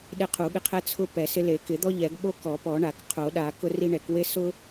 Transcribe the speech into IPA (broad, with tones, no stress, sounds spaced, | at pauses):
ɗ e˦ qʰ u˨˩˦ ɠ ɪ˦ qʰ ɛ˦ t͡sʰ ʊ˦ p ɛ˨˩˦ s ɪ˦ l e˨˩˦ k ɪ˨˩˦ d̪ ɔ˦ ʎ ɛ˨˩˦ ɡ ɓ o˦ k ɔ˨˩˦ p ɔ˨˩˦ ɳ a˨˩˦ k qʰ o˨˩˦ ɗ a˨˩˦ k ʊ˦ r i˦ ɳ ɛ˨˩˦ k w e˦ s ʊ˦